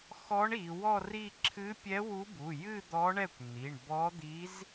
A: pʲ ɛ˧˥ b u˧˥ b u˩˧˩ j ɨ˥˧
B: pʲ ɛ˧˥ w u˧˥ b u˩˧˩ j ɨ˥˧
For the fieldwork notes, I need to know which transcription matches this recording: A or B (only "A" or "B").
B